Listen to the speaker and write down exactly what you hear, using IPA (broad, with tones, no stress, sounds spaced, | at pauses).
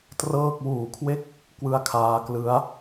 t r ɤː˥˩ k̚ w uː˨˩ kʰ w e˦˥ k̚ | k w ɯ˧ a̯ kʰ aː˧ k l ɯ˦˥ a̯